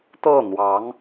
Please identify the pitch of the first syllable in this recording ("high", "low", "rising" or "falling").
falling